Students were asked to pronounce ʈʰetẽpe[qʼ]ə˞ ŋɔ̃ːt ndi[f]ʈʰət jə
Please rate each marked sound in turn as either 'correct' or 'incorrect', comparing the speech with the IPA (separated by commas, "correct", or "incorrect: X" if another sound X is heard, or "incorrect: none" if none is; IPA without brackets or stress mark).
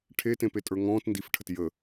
incorrect: tʼ, correct